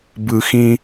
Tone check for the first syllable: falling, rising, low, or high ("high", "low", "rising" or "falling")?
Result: high